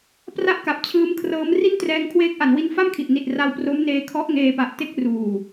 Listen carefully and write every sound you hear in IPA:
p r a˥˩ ʔ k a˨˩ p̚ t͡ɕʰ ɯː˦˥ m kʰ r ɤː˦˥ m r i˥˩ n t r ɛː˧ ŋ kʰ w eː˦˥ k̚ ʔ a˩˦ n w i˧ n f a˥˩ m kʰ i˨˩ ʔ n i˨˩ t̚ r a˧ w p r o˦˥ m n eː˧ kʰ ɔ˦˥ ʔ ŋ eː˧ p a˨˩ ʔ t e˥˩ k̚ r uː˨˩

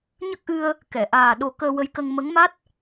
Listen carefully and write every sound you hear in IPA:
ɲ ə˦˥ k̚ ʔ ɨ˧ ə̯ | k ɛ˨˩˨ ʔ aː˨˩ ɗ o˨˩˦ k əː˧ w ə˧˥ j k ə˧ ŋ m ə˧˥ ŋ m a˦˥ t̚

